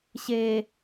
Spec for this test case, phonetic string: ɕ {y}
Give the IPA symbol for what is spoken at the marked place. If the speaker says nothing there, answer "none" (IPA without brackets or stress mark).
e